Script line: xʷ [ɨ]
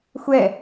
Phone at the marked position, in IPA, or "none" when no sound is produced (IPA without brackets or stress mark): ɛ